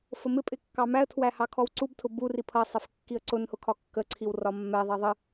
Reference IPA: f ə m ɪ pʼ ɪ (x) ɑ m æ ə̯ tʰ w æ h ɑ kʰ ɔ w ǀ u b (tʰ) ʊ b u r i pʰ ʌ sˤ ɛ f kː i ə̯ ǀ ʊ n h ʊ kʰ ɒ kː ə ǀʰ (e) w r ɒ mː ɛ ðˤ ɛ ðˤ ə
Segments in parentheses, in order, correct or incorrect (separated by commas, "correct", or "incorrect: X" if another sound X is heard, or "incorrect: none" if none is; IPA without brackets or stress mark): incorrect: kː, correct, incorrect: i